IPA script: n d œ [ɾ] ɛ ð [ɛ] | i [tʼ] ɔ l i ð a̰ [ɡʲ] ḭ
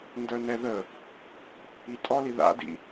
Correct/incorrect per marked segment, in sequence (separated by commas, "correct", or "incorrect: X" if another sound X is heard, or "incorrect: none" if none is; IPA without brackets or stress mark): incorrect: n, incorrect: ə, correct, incorrect: d